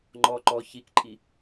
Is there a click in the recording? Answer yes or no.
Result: yes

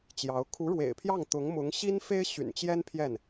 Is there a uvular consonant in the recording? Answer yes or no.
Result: no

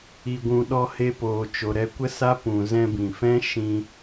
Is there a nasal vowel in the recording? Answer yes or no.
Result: yes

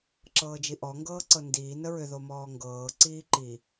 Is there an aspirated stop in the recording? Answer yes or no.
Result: no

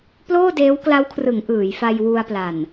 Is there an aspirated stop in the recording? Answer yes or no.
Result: yes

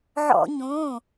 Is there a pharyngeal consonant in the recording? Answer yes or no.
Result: yes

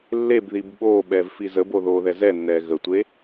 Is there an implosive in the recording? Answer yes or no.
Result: yes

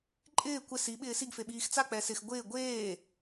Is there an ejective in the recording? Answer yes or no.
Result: yes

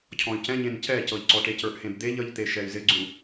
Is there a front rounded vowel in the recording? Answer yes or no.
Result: yes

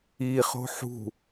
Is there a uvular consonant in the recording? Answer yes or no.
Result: yes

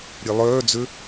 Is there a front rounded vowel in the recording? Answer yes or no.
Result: yes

